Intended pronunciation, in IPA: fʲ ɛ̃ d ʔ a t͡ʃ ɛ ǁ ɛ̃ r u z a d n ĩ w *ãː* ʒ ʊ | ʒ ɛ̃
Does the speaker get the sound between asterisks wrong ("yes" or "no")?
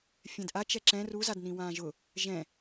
no